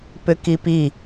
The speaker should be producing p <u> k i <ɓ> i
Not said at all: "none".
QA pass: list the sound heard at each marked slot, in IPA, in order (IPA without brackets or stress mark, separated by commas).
ʏ, p